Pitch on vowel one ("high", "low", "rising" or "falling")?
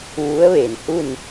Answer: rising